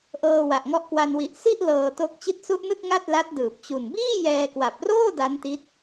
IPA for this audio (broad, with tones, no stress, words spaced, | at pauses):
ʔɤː˧wa˨˩ʔŋɔ˦˥ʔkwa˧n wi˨˩ʔ si˥˩ʔ lɤː˧to˦˥k̚ t͡ɕi˦˥t̚su˦˥ʔnɯ˥˩k̚ ŋa˥˩t̚la˦˥t̚dɯː˨˩p̚ t͡ɕu˨˩nbiː˥˩ jɛː˧kwa˨˩p̚roː˥˩ da˦˥nti˦˥t̚